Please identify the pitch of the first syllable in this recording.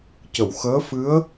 low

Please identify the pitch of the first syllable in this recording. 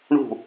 falling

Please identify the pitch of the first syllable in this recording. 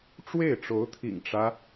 falling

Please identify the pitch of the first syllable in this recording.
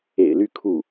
low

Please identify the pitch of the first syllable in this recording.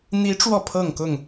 rising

